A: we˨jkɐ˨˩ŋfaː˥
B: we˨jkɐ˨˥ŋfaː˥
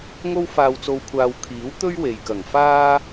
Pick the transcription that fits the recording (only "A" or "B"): A